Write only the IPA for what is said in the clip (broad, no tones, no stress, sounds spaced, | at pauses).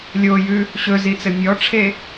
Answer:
lʲ o j ʉ | ɕ ɵ z i t͡s ɘ mʲ ɔ ʈ͡ʂʰ e